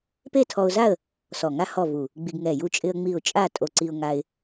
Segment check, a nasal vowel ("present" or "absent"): absent